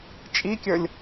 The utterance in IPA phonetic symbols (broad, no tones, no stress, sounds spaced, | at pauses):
t͡ʃʼ i kʲ ə˞ lʲ